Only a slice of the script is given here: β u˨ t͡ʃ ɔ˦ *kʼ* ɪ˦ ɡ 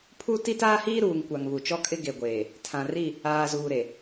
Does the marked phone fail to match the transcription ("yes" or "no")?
no